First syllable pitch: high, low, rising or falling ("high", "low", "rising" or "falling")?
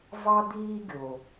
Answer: high